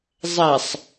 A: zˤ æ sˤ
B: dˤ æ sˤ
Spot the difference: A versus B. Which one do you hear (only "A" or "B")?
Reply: A